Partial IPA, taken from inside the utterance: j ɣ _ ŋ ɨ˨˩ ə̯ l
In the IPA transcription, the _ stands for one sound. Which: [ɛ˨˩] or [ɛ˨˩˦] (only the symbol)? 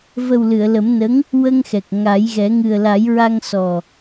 ɛ˨˩˦